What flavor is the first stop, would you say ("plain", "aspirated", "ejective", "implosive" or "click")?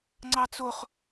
click